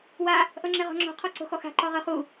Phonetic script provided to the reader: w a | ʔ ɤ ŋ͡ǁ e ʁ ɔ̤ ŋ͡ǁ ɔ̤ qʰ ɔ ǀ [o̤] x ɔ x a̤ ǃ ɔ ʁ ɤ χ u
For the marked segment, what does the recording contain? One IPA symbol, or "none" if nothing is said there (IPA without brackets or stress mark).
o̤